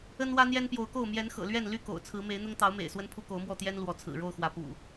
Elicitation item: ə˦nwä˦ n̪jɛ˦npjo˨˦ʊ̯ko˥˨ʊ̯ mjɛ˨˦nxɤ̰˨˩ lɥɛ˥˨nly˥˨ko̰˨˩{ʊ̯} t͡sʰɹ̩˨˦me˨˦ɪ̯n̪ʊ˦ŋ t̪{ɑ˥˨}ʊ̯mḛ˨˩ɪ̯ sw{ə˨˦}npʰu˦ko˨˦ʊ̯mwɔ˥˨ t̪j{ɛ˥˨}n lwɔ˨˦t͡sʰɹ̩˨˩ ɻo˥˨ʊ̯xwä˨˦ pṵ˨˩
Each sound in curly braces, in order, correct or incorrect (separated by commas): correct, incorrect, incorrect, incorrect